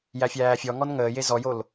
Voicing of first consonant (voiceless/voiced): voiced